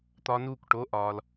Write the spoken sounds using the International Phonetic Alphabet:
t̪ ɒ˦˥ n uː˥˨ k ʈ o˧˥˧ ʔ ɒː˨ l

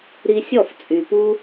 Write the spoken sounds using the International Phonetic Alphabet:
ɾ i˧ sʲ ɔ˥˩ f t͡sʼ y˩ p u˧

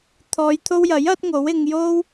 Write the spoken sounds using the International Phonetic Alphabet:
t̪ʰ ɔː˨˧ j t̪ʰ o˧ w j ɐ˨˥ j ɐ˨˥ t̚ ŋ o˨˥ w ɪ˧ ŋ j o˥ w

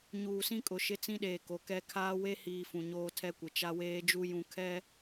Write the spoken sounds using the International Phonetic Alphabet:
ɲ uː˨ s ĩ˦ kʼ ʊ˨ ʃ ɪ˦ t͡s ĩ˦ ɗ eː˨ k o˨ k ɛ˦ kʰ aː˦ w e˦ h iː˨ f ũ˨ ɲ oː˦ tʰ ɛ˦ kʷ ɪ˨ t͡ʃ a˦ w eː˦ d͡ʒ u˦ j ũ˨ kʰ ɛ˦

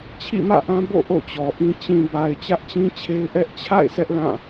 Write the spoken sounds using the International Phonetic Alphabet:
t͡ɕʰ ḭ˦˨ m ä̰˦˨ ʔ ã˦ b o̰˦˨ ʔ o̰˦˨ t͡ɕ ɔ˨ ʔ ĩ˦ t͡ɕ ĩ˨ b a˨ ɪ̯ t͡ɕ ä˦ ʔ t͡ɕ ĩ˦ t͡ɕʰ e˦ ɪ̯ ʔ ɛ˦ ʔ t͡ɕʰ a̰˦˨ ɪ̯ s ɛ˦ ʔ l ã˦˨

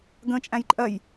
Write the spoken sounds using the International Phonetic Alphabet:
ɡ ə̃ t͡ʃʼ æ̃ j ǃʼ ɜ j

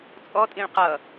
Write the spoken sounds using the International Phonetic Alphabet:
t͡sʼ ɔ tʼ ĩ ɭ q ʌ

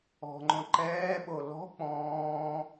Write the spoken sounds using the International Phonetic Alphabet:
ɔ̤ ŋ͡ǃ õ ǃ ɛː ɓ o l ɔ̤ k͡p ɔ̃ː

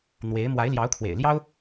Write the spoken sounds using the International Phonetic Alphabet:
n̪ w e˧˥ ɪ̯ m w a˧˥ ɪ̯ l j ɑ˧˥ ʊ̯ kʰ w ḛ˨˩ ɪ̯ l j ɑ˥ ʊ̯

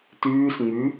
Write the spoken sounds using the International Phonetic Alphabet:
t ʉː s ŋ͡m ʉ

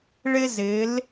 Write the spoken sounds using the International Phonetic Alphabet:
ɭ ɪ˧ z ɪ˩˧ l

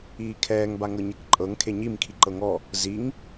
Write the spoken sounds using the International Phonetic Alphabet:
iː kʰ ɛː ŋ b a ŋ ɤ ɲ e k ǃʼ ɤ ŋ kʰ e ɲ i m kʰ i ǃ ɤ ŋ ɔ | z i ŋ

